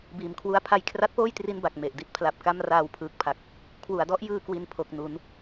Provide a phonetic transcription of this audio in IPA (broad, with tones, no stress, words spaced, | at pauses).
biː˨˩mkʰwu˦˥a̯pʰa˦˥j kʰra˦˥t̚poː˥˩j tri˥˩nba˨˩k̚ me˨˩ʔ di˥˩t̚pʰla˨˩p̚ka˥˩m raː˧wpʰɯː˨˩k̚pʰa˨˩k̚ | kʰwu˩˦a̯dɔ˥˩ʔjɯː˧ kwi˧npʰo˨˩k̚nu˩˦n